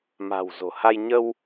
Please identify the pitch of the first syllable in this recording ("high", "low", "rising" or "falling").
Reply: low